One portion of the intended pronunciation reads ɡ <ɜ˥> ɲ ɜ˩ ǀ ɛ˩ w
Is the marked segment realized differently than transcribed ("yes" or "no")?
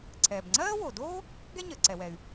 yes